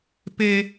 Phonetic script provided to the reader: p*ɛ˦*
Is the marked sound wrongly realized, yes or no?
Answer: yes